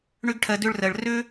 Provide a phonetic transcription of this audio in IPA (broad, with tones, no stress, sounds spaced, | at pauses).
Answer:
ɳ ø˥ ɡ ʈʰ ɜ˧ d ø˥ ɭ r ɜ˧ ɭ r ø˥